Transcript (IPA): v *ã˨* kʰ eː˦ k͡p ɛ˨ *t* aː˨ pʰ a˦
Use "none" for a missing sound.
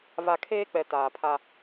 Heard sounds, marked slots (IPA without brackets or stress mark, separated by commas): a˨, t